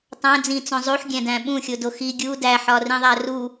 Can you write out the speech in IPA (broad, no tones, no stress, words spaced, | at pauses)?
tˤæ̃ d͡zĩt͡sõ zˤuħɡʲæ̃dæ̃ ɓũxʲodo xi ɡʲu dæħɒrĩðˤæ ru